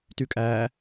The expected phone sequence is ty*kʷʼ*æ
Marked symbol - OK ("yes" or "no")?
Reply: no